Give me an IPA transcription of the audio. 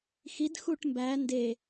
x i d x u ʈ m b æ n d e

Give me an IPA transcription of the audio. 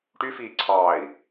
ʈ y f iː ǀʰ ɑː i̯

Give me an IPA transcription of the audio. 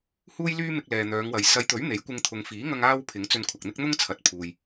h uː˥ j l yː˥ m ɪ˧ k̚ l ɛː˨ n̪ œː˨˧ ŋ w ɐ˨ j s ɐ˨˧ j t̪ ɵ˨˥ ɥ n̪ e˨˥ j kʷ ɪ˧ ŋ t̪ʰ ʊ˨ ŋ f iː˨˥ ŋ ɐ˧ ŋ aː˥ w pʰ ɪ˨˥ ŋ t͡s ɵ˧ n kʷʰ ɐ˨ k̚ n̪ ɪ˥ k̚ n̪ ʊ˥ ŋ t͡sʰ ɐ˨ t̚ pʰ uː˨ j

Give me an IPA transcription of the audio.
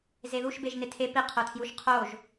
z e ð u ʃ b e ʒ n ɪ tʰ e p i qʰ o tʰ j u ʃ qʰ o ʒ

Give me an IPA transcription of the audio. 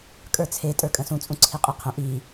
kʼ ə˞ t͡sʰ e tʼ ə˞ kʼ ə̃ s ũ t͡sʼ ũ ǀʰ i qʼ e qʰ ə̃ ʔ i

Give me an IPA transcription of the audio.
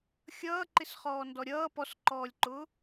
xʲ ʌː ǃ ɪ s χ ɔː n d ɔ ɾʲ ʌː p ɔ s ǃ ɔː lʲ ǃ ʊː

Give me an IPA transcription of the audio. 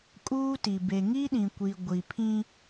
kʼ uː˦ t i˨ b e˨ ŋ i˦ ɗ ĩ˨ kʷ i˨ ɡʷ i˨ pʰ ĩ˦

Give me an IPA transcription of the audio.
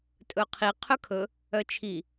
tʼ ɵ qʰ i qʰ ɵ kʰ ɵ | œ t͡ʃʰ i

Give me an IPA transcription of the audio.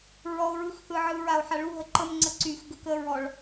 ɹ ɔ o̯ ɹ ɯ x θ ɯ ʕ ɯ ɹ a o̯ ħ a ɭ u ɦ ə ǃ ə m ŋ͡ǀ ə ǀ y x ɡ ə k ə ɹ ɔ ɭ

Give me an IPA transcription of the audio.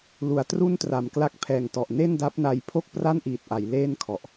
l u˨˩ a̯ t r u˥˩ n t r a˩˦ m k l a˦˥ k̚ pʰ ɛː˨˩ ŋ t ɔ˨˩ ʔ n e˥˩ n d a˦˥ p̚ n a˧ j pʰ o˥˩ k̚ p r a˥˩ n ʔ iː˨˩ t̚ ʔ a˩˦ j l eː˥˩ n kʰ ɔ˨˩ ʔ

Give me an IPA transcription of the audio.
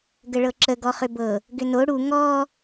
ɡ ə ɭ ɤ ǁ ə ɡ ɔ χ ʏ b ɤ | ɡ ʏ n o ɽ u ŋ ɔ

